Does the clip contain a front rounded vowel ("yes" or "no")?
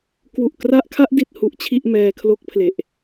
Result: no